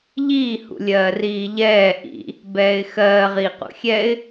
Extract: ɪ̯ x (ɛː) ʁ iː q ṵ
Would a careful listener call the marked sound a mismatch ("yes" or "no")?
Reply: yes